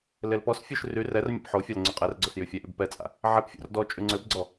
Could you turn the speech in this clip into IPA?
l e l p ɔ s fʲ ø ʃ r y r ɛ r mʲ a̰ p ħ o fʲ a l ŋ͡ǀ y qʼ ɛ r ɡ͡ǀ o s j y fʲ ɛ ʔ y b p ɛ t͡sʼ a̰ | ʕ ɛ p fʲ o̰ r d ɔ t͡ʃʼ y ŋ͡ǀ ø b ɡ͡ǀ ɔ

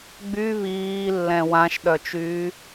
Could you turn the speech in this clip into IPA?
ɡ͡b y β iː lː ɛ̃ w ã ʃ ɗ œ t͡ʃ yː

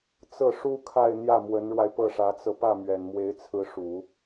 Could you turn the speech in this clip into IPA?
t͡s ɤ˥˩ ʂ u˥ kʰ a˥˧ ɪ̯ n̪ j ä˥˩ m w ə˧˥ n ɻ w a˧ ɪ̯ p ɤ˥˩ ʂ ä˧˥ t͡s ɤ˧ p ä˥˩ m ɥ ɛ˨˩ n m w e˧˥ ɪ̯ t͡sʰ ɹ̩˧˥ ʂ u˨˩˦

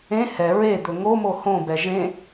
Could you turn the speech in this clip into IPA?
ẽ h ɛ ɹ e d̪ ɵ ŋ o m o h õ b ɛ ʒ ẽ

